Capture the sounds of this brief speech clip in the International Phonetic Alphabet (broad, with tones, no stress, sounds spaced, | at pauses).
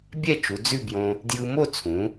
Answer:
bʲ ɛ˥˧ t͡ʃ u˩˧ d͡z ʉ˥˧ b j õ˧ | d j ɯ˧ m o˥˧ t͡sʰ ũ˩˧